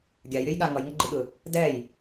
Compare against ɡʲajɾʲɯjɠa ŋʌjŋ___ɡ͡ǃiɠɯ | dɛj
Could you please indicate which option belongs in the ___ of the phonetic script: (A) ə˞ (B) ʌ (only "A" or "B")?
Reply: B